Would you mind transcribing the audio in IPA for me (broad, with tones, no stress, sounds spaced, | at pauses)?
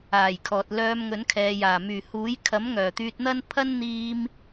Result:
aː˨˩ j kʰ ɔː˨ t̚ l œː˧ m ŋ ɵ˨˥ n kʰ ɛː˨ j aː˨˩ m yː˨˩ h uː˨˥ j kʰ ɐ˨˥ m ŋ œː˨˩ t̪ yː˧ t̚ n̪ ɐ˥ n pʰ ɐ˥ n n̪ iː˧ m